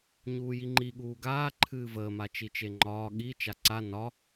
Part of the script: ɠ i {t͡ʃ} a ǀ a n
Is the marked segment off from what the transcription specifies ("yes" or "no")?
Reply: no